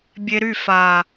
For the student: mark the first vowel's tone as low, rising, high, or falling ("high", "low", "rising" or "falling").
high